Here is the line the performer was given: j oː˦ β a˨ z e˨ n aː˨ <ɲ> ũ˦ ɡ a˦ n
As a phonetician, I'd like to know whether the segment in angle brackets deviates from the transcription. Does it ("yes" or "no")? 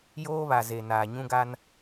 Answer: no